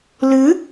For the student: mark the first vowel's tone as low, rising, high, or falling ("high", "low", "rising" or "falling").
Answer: rising